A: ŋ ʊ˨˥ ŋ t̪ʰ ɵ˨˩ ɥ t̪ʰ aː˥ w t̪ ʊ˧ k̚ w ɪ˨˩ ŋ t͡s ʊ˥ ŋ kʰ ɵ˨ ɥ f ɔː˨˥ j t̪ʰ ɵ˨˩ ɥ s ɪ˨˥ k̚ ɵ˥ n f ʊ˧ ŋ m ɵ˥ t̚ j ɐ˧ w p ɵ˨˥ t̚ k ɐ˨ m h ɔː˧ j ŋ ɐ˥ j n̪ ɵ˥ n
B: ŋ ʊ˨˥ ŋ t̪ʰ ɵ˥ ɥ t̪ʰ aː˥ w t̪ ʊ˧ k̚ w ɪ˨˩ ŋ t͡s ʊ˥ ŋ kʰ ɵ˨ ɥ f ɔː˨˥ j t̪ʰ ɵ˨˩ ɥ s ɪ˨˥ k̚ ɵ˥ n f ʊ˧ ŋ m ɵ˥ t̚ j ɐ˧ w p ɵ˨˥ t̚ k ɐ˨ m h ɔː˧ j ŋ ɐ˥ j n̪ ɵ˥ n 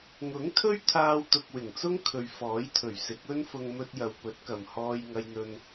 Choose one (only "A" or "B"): B